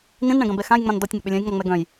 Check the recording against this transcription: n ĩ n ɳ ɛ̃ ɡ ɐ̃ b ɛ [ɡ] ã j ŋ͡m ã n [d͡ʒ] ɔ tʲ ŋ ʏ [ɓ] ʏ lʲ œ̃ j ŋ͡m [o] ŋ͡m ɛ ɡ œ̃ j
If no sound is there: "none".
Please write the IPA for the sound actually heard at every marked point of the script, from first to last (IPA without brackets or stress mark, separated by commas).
x, d, ɓ, ɔ